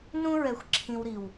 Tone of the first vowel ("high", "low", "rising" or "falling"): high